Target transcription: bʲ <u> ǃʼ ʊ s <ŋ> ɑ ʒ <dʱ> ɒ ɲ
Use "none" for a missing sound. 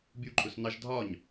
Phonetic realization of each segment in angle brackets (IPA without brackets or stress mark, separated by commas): u, n, dʱ